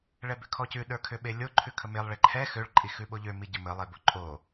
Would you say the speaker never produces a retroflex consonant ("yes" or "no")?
no